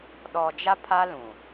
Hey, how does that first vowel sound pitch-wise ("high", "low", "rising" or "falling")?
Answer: low